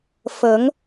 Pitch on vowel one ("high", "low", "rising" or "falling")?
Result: rising